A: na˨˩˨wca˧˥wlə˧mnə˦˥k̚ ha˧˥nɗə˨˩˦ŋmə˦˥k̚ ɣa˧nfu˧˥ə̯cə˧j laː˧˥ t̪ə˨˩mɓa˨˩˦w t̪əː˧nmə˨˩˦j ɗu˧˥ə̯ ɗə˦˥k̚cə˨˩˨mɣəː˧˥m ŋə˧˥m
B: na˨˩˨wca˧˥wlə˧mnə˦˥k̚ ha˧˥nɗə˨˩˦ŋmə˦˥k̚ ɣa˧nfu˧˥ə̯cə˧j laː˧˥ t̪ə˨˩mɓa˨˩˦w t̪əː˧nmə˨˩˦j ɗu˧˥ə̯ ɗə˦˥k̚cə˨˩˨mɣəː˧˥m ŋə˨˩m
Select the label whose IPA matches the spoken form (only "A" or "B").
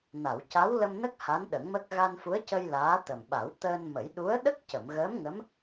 A